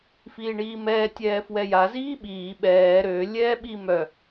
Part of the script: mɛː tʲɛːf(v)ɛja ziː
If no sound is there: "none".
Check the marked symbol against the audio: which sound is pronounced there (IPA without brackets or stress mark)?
w